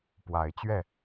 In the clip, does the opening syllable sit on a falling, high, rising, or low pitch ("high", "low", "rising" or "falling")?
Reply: rising